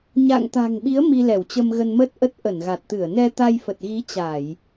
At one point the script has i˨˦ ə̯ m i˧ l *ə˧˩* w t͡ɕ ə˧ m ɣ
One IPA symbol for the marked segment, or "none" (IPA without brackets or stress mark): ɛ˧˩